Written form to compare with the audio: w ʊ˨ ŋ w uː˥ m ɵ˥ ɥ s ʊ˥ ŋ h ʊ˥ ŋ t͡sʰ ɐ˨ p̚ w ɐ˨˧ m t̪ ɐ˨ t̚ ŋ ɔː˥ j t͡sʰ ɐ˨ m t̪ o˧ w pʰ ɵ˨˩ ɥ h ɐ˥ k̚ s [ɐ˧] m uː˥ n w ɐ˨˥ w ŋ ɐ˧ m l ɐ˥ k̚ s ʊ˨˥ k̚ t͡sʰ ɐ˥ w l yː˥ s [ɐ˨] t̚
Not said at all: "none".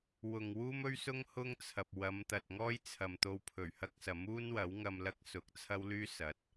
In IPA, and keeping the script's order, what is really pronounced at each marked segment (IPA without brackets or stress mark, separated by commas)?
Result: ɐ˨˥, ɐ˨˥